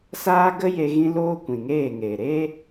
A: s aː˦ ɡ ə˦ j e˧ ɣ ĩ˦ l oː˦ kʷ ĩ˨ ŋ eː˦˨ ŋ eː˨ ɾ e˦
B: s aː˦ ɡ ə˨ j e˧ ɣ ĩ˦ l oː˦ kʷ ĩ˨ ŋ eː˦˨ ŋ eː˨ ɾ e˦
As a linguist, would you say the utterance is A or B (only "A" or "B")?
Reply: A